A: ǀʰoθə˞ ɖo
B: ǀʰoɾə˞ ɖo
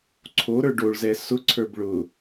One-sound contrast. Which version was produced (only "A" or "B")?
B